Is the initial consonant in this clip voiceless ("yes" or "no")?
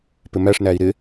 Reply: yes